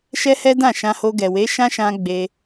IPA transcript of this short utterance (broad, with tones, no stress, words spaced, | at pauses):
ʃɛ˦hɛ˦dã˦˨ ʃã˧ho˧ ɡɛ˨we˨˦ ʃã˦ʃã˧ ɡ͡be˧